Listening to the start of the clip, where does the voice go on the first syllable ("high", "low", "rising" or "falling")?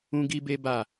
high